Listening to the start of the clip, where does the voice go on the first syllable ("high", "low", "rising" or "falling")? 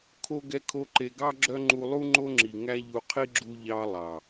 high